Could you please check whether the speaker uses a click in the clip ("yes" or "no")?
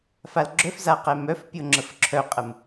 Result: yes